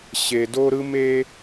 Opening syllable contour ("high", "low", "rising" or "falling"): low